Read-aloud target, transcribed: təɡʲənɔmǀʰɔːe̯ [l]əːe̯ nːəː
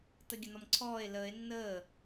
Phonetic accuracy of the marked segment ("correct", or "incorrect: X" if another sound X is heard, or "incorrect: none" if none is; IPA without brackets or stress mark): correct